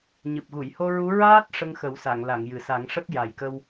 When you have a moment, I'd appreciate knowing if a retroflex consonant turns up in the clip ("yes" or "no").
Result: yes